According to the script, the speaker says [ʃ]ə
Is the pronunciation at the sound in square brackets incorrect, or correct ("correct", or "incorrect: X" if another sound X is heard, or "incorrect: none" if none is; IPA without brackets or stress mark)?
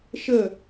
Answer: correct